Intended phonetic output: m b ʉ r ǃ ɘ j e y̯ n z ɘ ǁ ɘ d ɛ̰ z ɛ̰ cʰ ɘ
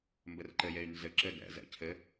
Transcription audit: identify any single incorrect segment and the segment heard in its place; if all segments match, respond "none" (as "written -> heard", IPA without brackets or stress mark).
ʉ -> ɘ